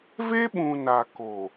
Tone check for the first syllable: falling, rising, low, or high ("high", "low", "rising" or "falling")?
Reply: high